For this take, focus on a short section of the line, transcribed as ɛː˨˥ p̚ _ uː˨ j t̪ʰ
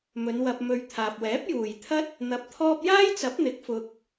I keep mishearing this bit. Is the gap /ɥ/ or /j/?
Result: j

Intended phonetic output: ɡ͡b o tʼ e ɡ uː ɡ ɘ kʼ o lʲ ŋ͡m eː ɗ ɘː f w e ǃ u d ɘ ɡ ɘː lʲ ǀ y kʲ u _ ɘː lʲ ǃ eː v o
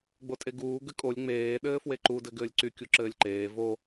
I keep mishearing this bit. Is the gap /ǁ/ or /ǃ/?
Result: ǁ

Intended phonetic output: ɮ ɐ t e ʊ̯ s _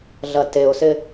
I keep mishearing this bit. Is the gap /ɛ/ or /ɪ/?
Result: ɪ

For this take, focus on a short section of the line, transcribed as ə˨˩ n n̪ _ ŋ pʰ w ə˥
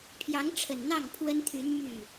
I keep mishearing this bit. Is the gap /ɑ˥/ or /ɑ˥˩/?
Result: ɑ˥˩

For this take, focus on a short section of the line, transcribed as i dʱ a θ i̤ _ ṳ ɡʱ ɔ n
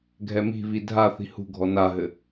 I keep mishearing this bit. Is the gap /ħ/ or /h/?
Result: h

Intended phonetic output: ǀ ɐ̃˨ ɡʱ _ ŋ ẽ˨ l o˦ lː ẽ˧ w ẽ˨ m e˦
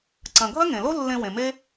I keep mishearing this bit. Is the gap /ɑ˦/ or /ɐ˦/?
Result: ɐ˦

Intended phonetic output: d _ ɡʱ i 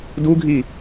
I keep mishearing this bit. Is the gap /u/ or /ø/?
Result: u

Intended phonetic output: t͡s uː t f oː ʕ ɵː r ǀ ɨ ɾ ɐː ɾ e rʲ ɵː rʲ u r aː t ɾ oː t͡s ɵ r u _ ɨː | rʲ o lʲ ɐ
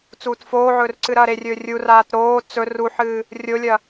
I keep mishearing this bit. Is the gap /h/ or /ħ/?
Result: ħ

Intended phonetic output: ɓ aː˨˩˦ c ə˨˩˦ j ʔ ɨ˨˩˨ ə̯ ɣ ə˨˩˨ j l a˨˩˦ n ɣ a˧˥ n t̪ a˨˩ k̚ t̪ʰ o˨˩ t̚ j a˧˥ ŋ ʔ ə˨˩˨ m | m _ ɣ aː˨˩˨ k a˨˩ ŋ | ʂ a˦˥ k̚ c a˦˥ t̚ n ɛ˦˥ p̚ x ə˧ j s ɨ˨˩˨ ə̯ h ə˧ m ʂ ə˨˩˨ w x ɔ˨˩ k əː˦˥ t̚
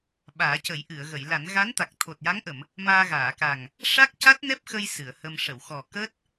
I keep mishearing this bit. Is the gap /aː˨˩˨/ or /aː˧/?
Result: aː˧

